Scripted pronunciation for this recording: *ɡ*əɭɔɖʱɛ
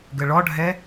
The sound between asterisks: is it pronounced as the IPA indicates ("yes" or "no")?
yes